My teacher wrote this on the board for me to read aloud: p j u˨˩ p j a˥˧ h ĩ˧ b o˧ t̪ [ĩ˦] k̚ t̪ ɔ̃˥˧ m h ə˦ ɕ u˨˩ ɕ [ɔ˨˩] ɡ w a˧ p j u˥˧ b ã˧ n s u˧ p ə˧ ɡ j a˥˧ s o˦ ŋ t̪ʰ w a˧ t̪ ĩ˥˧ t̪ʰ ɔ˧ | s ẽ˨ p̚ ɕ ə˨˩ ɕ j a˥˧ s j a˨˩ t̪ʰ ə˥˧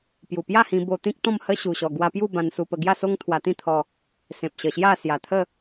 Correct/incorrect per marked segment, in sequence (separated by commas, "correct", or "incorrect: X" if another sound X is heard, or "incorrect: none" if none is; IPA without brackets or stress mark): correct, correct